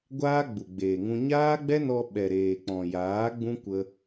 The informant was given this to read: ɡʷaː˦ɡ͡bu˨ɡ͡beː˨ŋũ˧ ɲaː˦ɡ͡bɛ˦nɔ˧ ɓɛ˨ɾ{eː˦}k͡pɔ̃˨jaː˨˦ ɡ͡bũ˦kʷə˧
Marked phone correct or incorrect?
incorrect